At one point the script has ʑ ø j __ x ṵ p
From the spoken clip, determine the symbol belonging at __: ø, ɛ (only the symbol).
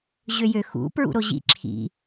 ø